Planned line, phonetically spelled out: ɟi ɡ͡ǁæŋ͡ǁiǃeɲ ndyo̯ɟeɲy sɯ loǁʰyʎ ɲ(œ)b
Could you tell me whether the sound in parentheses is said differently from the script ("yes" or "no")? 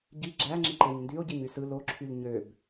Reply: yes